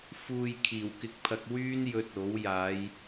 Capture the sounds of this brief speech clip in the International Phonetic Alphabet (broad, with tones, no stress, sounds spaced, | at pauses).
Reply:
f uː˨ j kʰ iː˨˩ w k ɪ˧ k̚ pʰ ɐ˧ k̚ w yː˥ n j ɵ˧ t̚ o˨˥ w j aː˨˧ j